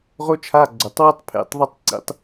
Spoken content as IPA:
ʁ o˥ t͡ʃʰ a˧˥˧ ɡ͡ǀ o˩ tˤ w ɯ˥ tˤ pʰ ḛ˧˥˧ tˤ ðˤ a˥ tˤ ǀ ḭ˧˥˧ tˤ

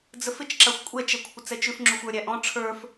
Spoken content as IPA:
d͡z ə f ɪ t͡ʃ ǁ a xʷ kʷʼ ɛ t͡ʃ ɛ kʷʰ ɪ t͡s ɛ t͡ʃ ʉ f ŋ͡ǁ u xʷ ə˞ ɾʲ æ ʔ ɔ̃ ʈ͡ʂʰ ə˞ f

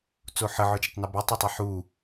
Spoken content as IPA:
t͡s o ħ ə ʕ œ d͡ʒ ɪ tˤ n o b ø tˤ ə tˤ a ħ u

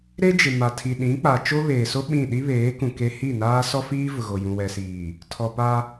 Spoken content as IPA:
ɾ e˦ d͡ʒ ɪ˨ m a˨ tʰ i˨ ɗ ĩ˨˦ k͡p a˨ t͡ʃ o˦ β eː˨ s o˦ ɓ ĩ˦˨ ɗ i˦ β eː˨˦ k ũ˨ k e˦ h i˦˨ n aː˦ s ɔ˦ f iː˦ v ʊ˨ ɣ o˨ j ũ˨ w ɛ˨ s iː˨ | tʰ ɔ˨ p a˦

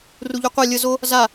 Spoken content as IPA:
r u ʎ u qʷ a lʲ ə z o | z a

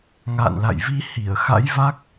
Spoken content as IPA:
ŋ a̰ː˧˨ n l a̰˧˨ j v i˧ h i˧˩ ə̯ x a̰˧˥ j v a˦˥ k̚

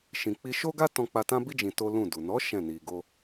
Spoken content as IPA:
ʃ ĩ˨ k͡p i˧ ʃ o˦ ɡ a˦ t ɔ̃˧ k͡p a˧ t ã˦ b i˦ d͡ʒ ĩ˧ t o˦ l ũ˦˨ d u˨ n ɔ˨˦ ʃ ɛ̃˦˨ n i˧ ɡ o˦

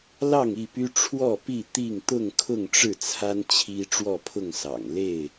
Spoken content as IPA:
l ɑ˥˨ ŋ i˥˨ p y˦ ʈ͡ʂʰ w ɔ˥˨ p i˥˨ t̪ i˥˨ ŋ t̪ ʊ˥˨ ŋ kʰ ʊ˥˨ ŋ ʈ͡ʂ ɻ̩˥˨ t͡sʰ a˦ n t͡ɕʰ i˦ ʈ͡ʂ w ɔ˥˨ pʰ ʊ˥˨ ŋ s ɑ̰˨˩ ŋ l e˥˨ ɪ̯

